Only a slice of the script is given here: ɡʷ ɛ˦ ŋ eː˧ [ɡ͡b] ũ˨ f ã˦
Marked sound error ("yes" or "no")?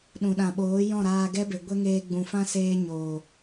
no